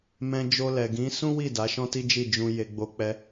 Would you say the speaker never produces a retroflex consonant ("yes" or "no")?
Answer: yes